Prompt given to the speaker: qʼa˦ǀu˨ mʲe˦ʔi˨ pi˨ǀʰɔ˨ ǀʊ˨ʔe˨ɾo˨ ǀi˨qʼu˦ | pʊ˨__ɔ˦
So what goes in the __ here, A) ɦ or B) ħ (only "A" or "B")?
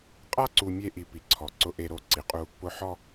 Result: B